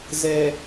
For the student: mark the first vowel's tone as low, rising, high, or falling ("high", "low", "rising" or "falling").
low